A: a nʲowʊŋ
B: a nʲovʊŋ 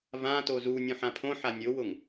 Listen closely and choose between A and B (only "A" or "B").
A